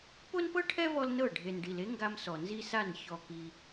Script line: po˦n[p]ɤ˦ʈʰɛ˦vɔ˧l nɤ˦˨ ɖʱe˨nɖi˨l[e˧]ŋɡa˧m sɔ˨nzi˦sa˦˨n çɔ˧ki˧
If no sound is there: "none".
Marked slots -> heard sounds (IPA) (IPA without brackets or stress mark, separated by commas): p, e˦